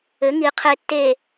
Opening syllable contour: rising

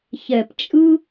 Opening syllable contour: low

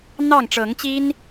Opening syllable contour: falling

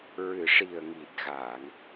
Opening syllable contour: low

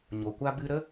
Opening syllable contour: low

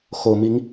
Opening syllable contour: low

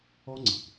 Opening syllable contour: high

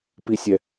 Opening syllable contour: low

